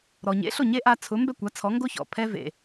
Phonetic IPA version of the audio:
ɾ ɔ˩ ɲ ḛ˩˥ ɬ o˥˩ ɲ e˥ ʔ a˧ t͡sʰ ʊ˩˥ m b ɛ˥˩ kʷ a˩˥ t͡sʰ ɔ˩˥ ŋ ɡ o˥ ç ɔ̰˩ pʰ ɛ˧ v ḛ˩

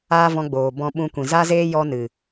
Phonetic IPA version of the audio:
aː˦ v ɔ̃˧ ɡ͡b oː˨ b ɔ̃˧ ɓ ũ˧ kʷ ĩ˨ z a˦ z eː˦ j ɔ˧ n ɨ˨

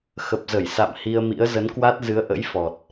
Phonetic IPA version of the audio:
x ə˨˩ p̚ z ə˧˩ j s a̰˧˨ m h i˧ ə̯ m ḭ˧˥ ə̯ z ə˨˦ n k w a˦˥ t̚ z ɨ˨˦ ə̯ ʔ ə̰˧˥ j f ɔ˨˩ t̚

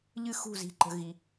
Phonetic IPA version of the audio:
ʎ ɨ˥˨ x ṳ˥˨ z i̤˧ ǃ ə̤˧ ɣ i˧

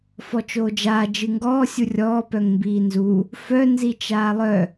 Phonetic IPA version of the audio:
f ɔ t͡ʃ oː d͡ʒ aː d͡ʒ ɨ ŋ ɡ ɔː sʲ u rʲ ɔː p œ ŋ m b iː n z u | f œ n z i t͡ʃ aː lˠ œ

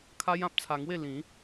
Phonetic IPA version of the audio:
kʰ a˦ j ã˦ p̚ t͡sʰ a˧ ŋ w e˥˧ l ĩ˨˦

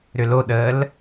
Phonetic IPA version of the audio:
ɾ ʏ l o ɗ əː l

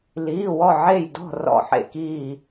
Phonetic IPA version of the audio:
l iː˧˥˧ w ɔ˥˧ ʕ e˥˧ j d ɔ̤˥˧ r ɔ̰˥˧ ħ ḛ˥˧ k iː˥˧

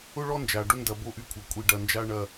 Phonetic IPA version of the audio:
ʊ˦ ɭ ɔ˦ n d͡ʒ a˨ ɖ ʊ˦ n d ɐ˨ b o˦ ʔ y˦ kʷʰ ɐ˨ kʷʼ i˦ ɖ ɐ˦ n d͡ʒ a˦ ɳ ɐ˦

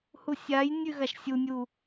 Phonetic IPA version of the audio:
h u sʲ a j nʲ ʉ ɣ a ʃ sʲ u nʲ u

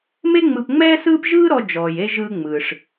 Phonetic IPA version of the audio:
m e˥ ŋ͡m ɯ˧ p ŋ͡m ɛː˥ s ɯː˥ p ʒ ɯː˥ ɾ ɔ˧ d͡ʒ ɔː˩ j e˧ ʒ ɯː˧ ŋ͡m ɯː˩ ʂ

